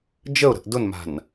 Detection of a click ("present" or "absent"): absent